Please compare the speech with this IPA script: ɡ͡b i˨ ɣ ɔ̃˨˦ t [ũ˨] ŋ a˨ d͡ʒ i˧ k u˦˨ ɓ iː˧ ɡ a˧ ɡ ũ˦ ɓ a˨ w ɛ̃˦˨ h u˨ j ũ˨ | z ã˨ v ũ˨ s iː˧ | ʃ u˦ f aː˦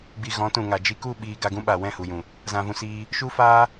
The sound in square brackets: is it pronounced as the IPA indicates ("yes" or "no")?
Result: yes